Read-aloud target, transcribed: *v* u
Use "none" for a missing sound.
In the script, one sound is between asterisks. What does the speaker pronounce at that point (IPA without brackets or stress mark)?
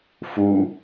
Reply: f